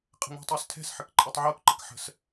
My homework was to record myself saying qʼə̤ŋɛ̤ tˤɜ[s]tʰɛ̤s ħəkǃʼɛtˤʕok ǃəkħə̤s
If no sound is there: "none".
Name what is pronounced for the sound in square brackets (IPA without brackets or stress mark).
s